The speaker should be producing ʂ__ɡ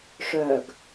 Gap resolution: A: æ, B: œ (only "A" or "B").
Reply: B